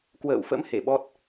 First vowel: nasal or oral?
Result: oral